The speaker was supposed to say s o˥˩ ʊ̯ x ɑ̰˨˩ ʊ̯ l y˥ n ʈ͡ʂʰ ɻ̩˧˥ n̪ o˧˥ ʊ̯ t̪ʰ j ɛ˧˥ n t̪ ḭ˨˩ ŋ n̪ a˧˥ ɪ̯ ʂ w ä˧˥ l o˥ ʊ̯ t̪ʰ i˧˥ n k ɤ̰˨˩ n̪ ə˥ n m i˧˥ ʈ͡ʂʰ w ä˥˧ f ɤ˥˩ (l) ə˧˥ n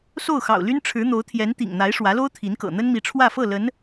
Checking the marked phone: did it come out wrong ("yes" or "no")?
no